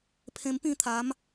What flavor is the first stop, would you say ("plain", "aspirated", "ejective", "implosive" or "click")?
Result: aspirated